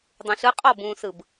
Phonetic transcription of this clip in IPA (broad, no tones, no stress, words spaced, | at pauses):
dˤũɬɯ qʼɔbũːsɯb